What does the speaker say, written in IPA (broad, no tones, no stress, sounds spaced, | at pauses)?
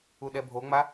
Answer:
u ɗ ɛ bʱ o ŋ͡m a